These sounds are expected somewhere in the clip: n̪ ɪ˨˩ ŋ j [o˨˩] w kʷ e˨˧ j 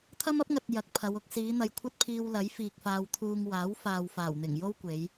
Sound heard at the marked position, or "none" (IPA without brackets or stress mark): o˥